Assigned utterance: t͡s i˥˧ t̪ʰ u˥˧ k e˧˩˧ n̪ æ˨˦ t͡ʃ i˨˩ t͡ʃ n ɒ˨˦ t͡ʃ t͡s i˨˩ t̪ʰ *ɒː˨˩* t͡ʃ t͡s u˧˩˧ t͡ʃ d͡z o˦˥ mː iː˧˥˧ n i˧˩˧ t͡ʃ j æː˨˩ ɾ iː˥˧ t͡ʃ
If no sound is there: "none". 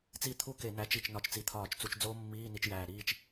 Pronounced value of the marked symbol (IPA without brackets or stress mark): ɒː˧˩˧